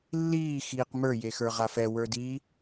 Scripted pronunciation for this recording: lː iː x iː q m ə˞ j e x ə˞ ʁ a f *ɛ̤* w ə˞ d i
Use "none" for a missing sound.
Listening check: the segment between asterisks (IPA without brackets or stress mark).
ɛ